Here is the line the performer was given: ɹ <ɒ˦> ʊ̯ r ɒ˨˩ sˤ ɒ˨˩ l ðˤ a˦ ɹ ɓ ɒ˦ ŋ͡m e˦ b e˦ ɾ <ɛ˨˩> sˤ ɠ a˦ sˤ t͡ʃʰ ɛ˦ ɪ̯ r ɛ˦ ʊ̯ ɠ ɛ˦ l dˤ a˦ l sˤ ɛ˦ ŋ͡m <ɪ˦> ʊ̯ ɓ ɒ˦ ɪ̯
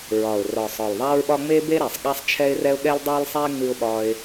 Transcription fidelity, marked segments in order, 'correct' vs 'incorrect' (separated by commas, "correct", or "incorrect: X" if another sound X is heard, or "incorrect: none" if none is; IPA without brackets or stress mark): incorrect: ɒ˨˩, correct, incorrect: ɨ˦